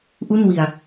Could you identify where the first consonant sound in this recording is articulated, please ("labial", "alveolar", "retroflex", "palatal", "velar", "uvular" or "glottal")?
glottal